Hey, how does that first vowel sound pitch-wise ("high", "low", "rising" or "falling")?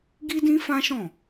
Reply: high